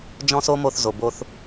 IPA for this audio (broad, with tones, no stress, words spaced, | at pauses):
d͡ʒɔ̃˦so˦mo˧θzo˨ bo˧θ